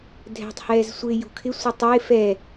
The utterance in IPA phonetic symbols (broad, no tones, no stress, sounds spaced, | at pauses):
dʱ ɛ̤ tˤ h ɛː z sʷ ɪː j ṳ kʰ ɪ sʷ ɪ tˤ ɪː f ɛ